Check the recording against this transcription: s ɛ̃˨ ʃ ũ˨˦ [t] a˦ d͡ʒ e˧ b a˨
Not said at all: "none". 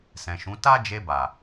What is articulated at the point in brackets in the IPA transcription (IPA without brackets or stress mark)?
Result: t